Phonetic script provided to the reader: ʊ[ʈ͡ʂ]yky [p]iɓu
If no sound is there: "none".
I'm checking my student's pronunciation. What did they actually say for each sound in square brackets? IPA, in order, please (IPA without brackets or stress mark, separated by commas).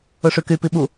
ʂ, p